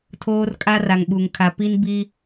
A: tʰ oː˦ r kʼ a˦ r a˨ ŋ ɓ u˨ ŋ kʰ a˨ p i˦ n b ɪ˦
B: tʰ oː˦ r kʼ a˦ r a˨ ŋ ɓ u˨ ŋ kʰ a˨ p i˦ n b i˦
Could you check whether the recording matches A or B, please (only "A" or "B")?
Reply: B